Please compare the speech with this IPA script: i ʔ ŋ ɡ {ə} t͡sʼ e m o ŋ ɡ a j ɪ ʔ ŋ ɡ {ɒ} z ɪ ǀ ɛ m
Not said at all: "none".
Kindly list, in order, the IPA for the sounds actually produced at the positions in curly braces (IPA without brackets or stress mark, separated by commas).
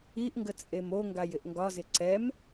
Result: ə, ɒ